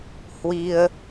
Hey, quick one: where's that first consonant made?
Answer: throat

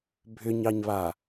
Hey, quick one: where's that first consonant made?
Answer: lips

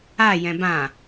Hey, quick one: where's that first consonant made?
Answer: palate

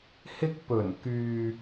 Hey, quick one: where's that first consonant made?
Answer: throat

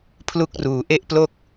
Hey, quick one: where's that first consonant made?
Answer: lips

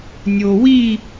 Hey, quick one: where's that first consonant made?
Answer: tongue tip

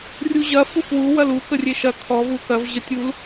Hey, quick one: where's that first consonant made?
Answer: tongue tip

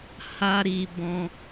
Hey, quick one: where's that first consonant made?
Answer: throat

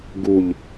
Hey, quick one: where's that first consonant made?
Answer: velum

